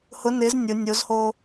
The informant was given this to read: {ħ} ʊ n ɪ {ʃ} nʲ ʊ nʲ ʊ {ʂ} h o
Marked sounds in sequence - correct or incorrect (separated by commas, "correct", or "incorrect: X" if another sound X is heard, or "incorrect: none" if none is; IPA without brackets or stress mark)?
incorrect: h, incorrect: z, incorrect: z